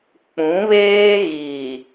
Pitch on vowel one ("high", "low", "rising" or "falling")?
rising